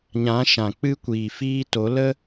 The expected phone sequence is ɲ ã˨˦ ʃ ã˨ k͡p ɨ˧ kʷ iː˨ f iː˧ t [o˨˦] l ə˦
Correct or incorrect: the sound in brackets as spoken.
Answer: correct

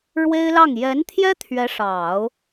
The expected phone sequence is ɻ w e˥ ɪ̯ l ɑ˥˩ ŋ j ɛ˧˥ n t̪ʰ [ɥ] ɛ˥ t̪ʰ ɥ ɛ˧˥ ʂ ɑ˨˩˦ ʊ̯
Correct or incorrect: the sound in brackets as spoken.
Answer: incorrect: j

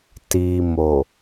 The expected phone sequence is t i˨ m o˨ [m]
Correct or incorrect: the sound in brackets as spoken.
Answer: incorrect: none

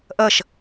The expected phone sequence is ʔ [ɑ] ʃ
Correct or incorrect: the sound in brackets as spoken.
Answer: incorrect: ʌ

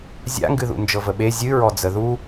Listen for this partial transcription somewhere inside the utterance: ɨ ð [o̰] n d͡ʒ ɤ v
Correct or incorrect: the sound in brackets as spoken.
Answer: incorrect: ṵ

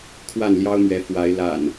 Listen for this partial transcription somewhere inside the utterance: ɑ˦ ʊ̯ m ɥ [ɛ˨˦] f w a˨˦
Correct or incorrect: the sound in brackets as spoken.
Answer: correct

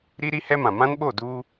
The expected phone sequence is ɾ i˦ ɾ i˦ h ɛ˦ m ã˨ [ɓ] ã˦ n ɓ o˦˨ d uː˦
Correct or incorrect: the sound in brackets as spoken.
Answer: incorrect: m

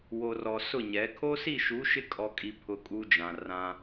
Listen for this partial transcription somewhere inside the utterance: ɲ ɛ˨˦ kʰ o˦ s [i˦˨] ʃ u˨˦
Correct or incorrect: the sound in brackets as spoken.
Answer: correct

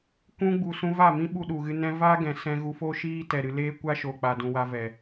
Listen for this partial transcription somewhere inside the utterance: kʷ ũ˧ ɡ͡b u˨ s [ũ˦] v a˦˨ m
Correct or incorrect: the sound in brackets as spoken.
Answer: incorrect: ũ˧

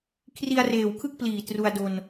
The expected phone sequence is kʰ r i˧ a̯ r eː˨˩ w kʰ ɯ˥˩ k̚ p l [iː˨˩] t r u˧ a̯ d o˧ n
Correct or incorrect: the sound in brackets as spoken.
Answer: correct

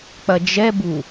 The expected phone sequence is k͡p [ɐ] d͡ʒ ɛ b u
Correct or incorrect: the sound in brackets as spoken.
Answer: correct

